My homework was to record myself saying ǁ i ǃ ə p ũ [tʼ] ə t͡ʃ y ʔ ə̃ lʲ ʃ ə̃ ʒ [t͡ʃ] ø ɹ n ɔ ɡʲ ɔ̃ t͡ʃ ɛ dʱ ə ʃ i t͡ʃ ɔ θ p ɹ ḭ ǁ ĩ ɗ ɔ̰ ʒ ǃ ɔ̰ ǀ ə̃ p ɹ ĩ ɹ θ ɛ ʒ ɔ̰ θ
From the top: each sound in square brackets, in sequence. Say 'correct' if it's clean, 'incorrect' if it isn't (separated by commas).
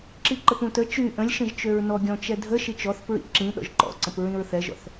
incorrect, correct